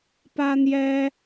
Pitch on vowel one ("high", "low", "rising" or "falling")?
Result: high